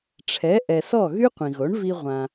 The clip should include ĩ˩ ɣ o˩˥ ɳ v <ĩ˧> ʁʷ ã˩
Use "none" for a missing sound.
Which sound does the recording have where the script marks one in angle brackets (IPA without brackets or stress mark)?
i˧